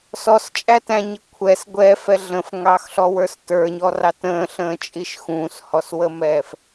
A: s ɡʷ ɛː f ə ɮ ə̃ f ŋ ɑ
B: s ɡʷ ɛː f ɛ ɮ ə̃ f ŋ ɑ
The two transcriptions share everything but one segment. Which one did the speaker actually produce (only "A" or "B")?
B